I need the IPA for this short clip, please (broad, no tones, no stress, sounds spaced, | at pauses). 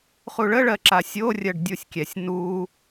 χ u ɭ ə ɭ ɜ ǁ a sʲ o rʲ ɜ ɖ dʲ u sʲ kʲ ɛ sʲ n u